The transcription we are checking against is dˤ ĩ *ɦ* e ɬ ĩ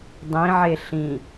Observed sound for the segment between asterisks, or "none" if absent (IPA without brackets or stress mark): ʕ